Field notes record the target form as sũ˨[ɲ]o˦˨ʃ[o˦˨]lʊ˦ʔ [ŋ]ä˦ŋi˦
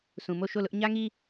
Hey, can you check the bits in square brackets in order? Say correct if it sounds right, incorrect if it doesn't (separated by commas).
incorrect, correct, incorrect